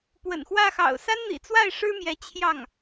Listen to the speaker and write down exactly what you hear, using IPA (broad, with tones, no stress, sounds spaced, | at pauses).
p w ə̰˨˩ n x w ä˥˩ x ɑ̰˨˩ ʊ̯ s a˥ n n̪ ḭ˨˩ t͡s w a˥˩ ɪ̯ ʂ ɻ̩˥ m j ɛ˧˥ t͡ɕʰ j ɑ˥˩ ŋ